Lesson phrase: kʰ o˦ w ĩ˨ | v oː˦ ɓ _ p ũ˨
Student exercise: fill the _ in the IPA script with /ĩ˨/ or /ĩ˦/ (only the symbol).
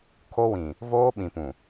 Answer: ĩ˨